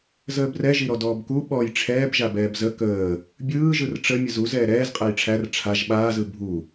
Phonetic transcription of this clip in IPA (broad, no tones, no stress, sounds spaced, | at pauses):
z əː b r ɛ ʒ i ɾ ɔ d ɔː b k u ɓ ɔ j ʈ͡ʂʰ ɛː b ʒ a b ɛː b z ə k əː | bʲ ɯː ʒ ɯ r ʈ͡ʂ ə mʲ ə z u z ɛː ɾ ɛː z qʼ æ j ʈ͡ʂʰ æ r ʈ͡ʂʰ a ʒ ɓ aː z ɯ bʱ u